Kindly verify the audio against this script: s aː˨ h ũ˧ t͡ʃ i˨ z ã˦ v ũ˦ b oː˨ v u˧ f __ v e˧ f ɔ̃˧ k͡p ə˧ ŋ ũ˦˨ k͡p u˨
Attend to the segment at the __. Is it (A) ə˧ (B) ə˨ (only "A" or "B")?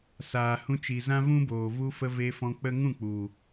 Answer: A